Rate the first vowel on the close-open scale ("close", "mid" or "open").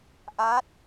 open